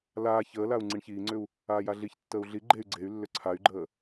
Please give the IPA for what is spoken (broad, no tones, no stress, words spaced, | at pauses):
laː çəːlau̯ ŋ͡ǀiɳçiːŋ͡ǀʏu̯ | aːjaɮiçtːəːu̯ ɮi ɡ͡ǃey̯ ɡ͡ǀey̯ lːʏǀʰay̯ɡ͡ǃəː